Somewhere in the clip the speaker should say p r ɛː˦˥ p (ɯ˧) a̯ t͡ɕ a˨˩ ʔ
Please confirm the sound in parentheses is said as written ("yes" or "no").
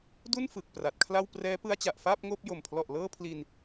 no